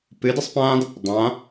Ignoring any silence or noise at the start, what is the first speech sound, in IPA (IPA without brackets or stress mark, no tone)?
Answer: p